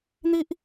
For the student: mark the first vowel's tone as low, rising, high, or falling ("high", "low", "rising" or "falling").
high